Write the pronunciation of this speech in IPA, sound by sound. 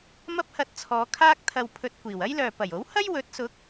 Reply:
m ɐ˥ p̚ h ɐ˧ t̚ t͡sʰ ɔː˨˧ kʰ aː˥ k̚ t̪ʰ ɐ˧ w pʰ ɵ˧ t̚ kʷ iː˨˩ w ɐ˥ j l œː˨ p ɐ˨˩ j o˨˥ w h ɐ˥ j w ɵ˨˥ t̚ s ʊ˨˥ k̚

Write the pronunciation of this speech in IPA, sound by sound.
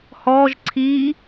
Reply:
h ɔ ʒ ǀʰ i

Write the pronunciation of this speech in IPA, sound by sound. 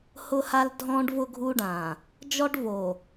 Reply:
h ʊ˦ h a˦ l dʱ ɔ̃˦ ɖ v ʊ˦ ɡʱ u˦ ɖ ã˨ | d͡ʒ ɔ˦ ɖ v o˨

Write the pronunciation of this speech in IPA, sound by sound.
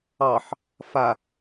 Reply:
ɑ ħ | f a

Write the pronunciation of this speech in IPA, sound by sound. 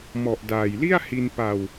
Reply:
m ɔ˨˩ ʔ d aː˨˩ j l i˥˩ a̯ h i˧ n p a˧ w

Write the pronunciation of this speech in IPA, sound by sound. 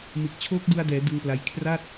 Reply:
m ɯ˨˩ k̚ t͡ɕʰ oː˦˥ k̚ d u˧ a̯ d ɛː˩˦ d ɯ˧ ŋ p l a˧ j kʰ r a˥˩ t̚

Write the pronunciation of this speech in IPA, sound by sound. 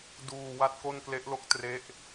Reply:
d uː˧ w a˥˩ t̚ k o˥˩ n k l e˦˥ ʔ l o˥˩ k̚ t r e˦˥ ʔ

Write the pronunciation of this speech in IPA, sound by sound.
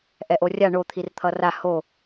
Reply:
ʔ ɛ ʔ o rʲ a ɳ o t̪ʰ i r t̪ʰ ʌ r a h o

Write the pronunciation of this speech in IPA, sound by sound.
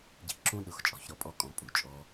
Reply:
ɟ i̤˨ ǁ ũ˧ ɗ ʊ˨ x t͡ʃʼ ɔ̤˧ ç ɾ ɔ˦ pʼ ɔ˦ kʼ ɔ̃˧ pʼ u˨ t͡ʃʼ ɔ˧

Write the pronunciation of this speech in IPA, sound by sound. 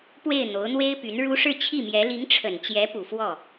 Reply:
p w e˥˩ ɪ̯ n̪ o˧˥ ʊ̯ n̪ w e˥ ɪ̯ p y˧˥ n ɻ u˥ ʂ ɻ̩˥˧ t͡ɕʰ i˥˩ m j ɛ˧˥ l i˧˥ ŋ ʈ͡ʂʰ ə˨˩ n t͡ɕ j ɛ˧˥ p u˨˩ f w ɔ˥˩

